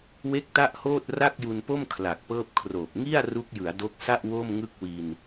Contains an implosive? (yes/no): no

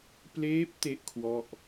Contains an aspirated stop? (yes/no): yes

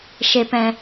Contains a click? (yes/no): no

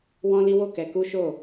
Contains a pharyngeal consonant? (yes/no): no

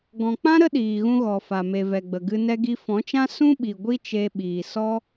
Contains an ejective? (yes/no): no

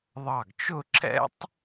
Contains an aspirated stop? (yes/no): no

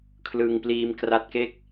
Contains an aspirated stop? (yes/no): yes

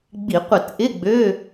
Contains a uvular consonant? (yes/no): yes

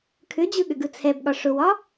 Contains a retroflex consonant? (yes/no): yes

